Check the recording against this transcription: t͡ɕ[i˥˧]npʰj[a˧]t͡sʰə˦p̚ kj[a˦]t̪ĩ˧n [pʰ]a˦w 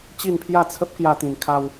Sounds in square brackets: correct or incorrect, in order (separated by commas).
correct, incorrect, correct, incorrect